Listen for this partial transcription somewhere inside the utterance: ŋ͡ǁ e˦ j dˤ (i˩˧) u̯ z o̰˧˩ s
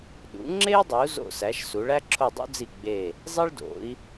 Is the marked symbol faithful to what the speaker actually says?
yes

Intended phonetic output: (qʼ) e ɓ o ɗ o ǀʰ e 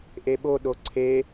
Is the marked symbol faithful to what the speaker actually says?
no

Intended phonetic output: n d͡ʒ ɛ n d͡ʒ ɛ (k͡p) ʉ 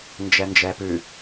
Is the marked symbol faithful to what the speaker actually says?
no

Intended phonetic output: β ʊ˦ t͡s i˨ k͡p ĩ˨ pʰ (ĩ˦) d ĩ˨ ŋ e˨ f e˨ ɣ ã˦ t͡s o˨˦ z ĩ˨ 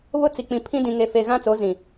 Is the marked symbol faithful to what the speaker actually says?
yes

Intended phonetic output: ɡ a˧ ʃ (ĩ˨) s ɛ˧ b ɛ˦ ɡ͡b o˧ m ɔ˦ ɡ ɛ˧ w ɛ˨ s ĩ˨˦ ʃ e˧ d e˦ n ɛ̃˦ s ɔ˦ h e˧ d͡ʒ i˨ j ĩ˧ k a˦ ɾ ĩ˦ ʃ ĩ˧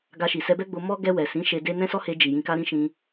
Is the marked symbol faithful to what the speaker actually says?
no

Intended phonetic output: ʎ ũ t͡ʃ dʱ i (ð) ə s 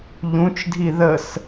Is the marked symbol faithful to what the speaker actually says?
yes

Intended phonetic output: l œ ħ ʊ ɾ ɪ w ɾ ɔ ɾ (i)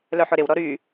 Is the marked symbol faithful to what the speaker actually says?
no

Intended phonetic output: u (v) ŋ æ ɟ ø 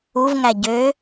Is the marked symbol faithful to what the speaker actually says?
yes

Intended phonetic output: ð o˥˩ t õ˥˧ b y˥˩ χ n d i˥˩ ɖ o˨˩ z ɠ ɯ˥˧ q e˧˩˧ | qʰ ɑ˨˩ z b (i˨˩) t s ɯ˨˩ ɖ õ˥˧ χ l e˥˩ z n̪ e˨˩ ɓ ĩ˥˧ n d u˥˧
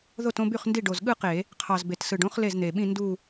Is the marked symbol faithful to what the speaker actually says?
no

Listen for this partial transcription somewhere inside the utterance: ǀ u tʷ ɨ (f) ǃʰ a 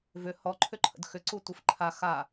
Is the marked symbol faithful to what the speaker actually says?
yes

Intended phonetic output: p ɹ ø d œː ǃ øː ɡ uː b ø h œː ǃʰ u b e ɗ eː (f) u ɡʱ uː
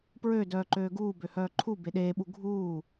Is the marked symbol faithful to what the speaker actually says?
no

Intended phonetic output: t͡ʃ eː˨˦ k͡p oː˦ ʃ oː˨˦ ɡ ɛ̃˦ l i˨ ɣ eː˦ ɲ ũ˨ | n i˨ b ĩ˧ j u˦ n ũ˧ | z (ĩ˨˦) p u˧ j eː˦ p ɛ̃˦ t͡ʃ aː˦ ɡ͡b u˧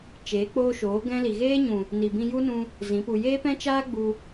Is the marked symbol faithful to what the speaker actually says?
yes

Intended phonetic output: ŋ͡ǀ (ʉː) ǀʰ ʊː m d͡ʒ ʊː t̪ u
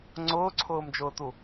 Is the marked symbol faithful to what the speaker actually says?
no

